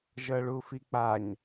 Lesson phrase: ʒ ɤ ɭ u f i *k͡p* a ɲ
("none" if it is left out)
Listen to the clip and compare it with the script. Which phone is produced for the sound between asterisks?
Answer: k͡p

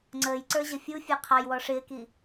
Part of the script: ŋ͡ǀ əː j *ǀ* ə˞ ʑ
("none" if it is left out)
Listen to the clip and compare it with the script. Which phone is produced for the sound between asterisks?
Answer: ǀ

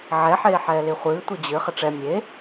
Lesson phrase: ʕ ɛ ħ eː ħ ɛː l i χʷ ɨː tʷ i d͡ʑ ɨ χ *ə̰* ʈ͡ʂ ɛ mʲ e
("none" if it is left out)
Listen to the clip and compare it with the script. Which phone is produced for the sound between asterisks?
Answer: ə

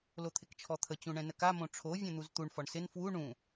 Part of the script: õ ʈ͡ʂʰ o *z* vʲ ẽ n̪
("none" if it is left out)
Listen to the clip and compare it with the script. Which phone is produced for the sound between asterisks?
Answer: none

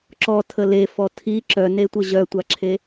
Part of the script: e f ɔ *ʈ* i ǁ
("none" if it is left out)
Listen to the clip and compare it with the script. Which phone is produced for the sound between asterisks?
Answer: tʰ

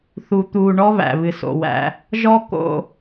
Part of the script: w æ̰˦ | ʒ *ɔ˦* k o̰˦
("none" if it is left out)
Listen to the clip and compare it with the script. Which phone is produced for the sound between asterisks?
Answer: ɔ˦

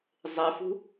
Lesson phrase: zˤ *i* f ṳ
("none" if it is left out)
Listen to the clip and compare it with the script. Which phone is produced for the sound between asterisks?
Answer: e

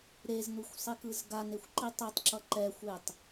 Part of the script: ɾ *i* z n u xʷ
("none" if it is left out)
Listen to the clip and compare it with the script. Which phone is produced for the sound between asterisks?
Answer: e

